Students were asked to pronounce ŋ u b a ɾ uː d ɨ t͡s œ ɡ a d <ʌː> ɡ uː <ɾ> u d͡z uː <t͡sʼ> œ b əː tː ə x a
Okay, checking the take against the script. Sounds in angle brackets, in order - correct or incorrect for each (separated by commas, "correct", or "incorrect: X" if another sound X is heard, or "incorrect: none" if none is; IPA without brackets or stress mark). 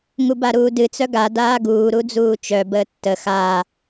incorrect: aː, correct, incorrect: t͡ʃ